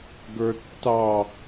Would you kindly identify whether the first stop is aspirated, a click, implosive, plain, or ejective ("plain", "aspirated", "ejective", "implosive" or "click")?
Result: plain